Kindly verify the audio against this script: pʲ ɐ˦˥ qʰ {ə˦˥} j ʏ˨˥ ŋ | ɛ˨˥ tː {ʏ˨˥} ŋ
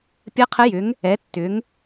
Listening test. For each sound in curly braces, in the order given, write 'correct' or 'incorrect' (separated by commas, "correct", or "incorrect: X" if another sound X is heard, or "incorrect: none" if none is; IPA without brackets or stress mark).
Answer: correct, correct